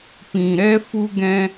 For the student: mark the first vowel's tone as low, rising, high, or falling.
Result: low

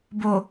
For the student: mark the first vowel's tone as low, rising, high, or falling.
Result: low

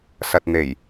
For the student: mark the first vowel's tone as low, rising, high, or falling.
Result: low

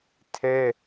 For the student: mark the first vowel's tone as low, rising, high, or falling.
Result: high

